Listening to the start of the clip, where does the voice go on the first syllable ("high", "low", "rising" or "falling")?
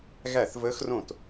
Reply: falling